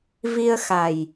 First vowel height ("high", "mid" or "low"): high